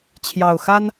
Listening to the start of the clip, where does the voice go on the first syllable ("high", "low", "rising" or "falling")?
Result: low